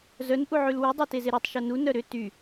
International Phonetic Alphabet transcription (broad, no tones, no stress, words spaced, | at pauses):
zœn ʔuʕylwy dˤœtezeɾutˤ ʃonu nœɾʏ ty